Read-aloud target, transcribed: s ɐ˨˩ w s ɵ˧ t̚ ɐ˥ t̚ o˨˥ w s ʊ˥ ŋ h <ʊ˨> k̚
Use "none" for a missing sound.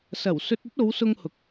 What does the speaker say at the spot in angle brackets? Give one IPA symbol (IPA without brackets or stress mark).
ʊ˨